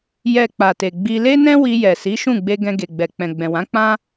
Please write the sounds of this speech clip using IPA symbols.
j ɛ˨ k͡p a˨ t e˨ ɡ͡b i˧ l e˦ n ɛ̃˦ w i˧ j ɛ˨ s i˨˦ ʃ ũ˦˨ ɡ͡b e˧ ɡ ɛ̃˧ ɡ e˨ ɡ͡b ɛ˨ k͡p ɛ̃˨ ɡ͡b ɛ̃˨ w ã˨˦ k͡p ã˦

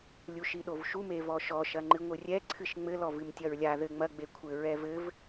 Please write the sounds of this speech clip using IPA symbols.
lʲ u ʃ i ɗ o v ʃ u m e v ɔ ʃ ɔ ʃ ɐ ŋ͡ǃ ɨ ŋʷ ɨ rʲ ɛ ǀʰ ɨ ʃ ŋ͡m ɘ l ɔ v ɨ m tʲ ɐ ɹ lʲ a ð ɘ ŋ͡m ɐ ɡ͡b e kʷʰ ɘ ɹ ɛ v ɘ v

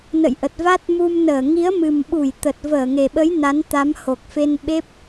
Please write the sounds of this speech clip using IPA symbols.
n ə̰˧˨ j ʔ ə˨˩ t̚ v a˦˥ t̚ m u˧ m n əː˧˩ ŋ i˨˦ ə̯ m ɨ˨˩ m ɓ u˧˩ j t̪ ə˨˩ t̚ v əː˧˩ ŋ e˨˩ ɓ ə˨˦ j n a˨˦ n t̪ a˨˦ m h o˨˩ k̚ f e˧ n ɓ e˦˥ p̚

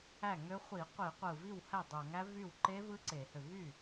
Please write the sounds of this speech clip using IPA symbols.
æ˥˩ ŋ ø˦˥ χʷ i˧˩˧ qʷ i˧˩˧ qʷ ɯ˧˩ v i˥˩ w h æ˥˩ dˤ o˧˩˧ ŋ æ˦˥ v y˥˩ w ǃ e˦˥ v ɯ˦˥ ǀ e˧˩˧ h ø˧˩ v y˥˩

